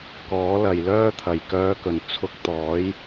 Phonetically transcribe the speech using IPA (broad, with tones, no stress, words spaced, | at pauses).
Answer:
kɔː˨˥lɐ˨j lœː˧t̪ʰɐ˨˩jkœː˨˧kɵ˨˩n t͡sʰʊ˨˥k̚t̪ɔː˨˥j